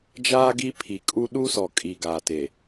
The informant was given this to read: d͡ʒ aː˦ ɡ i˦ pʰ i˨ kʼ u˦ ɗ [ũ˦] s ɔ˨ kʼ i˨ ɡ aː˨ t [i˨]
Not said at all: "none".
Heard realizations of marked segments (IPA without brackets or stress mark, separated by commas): u˦, e˨